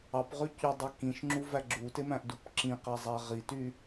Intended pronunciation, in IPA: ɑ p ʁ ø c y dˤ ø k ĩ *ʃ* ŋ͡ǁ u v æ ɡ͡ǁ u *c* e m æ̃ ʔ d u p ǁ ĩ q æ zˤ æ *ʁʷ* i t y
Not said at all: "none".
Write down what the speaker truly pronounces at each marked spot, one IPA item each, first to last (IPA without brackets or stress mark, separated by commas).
ʃ, t, ʁ